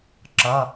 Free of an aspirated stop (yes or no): yes